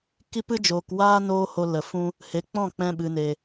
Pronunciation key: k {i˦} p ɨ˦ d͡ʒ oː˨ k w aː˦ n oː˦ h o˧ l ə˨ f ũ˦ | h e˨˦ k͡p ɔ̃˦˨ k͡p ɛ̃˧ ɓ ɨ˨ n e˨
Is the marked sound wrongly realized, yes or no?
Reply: no